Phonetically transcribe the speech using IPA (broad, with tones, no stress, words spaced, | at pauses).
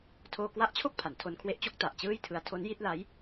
tʰoː˧kwa˦˥ʔt͡ɕʰo˥˩k̚ pʰa˩˦ntʰo˧nkʰwe˦˥ʔt͡ɕo˦˥k̚ ta˨˩ʔt͡ɕɯː˥˩jtʰɯ˦˥a̯ tʰo˦˥nji˥˩t̚la˦˥j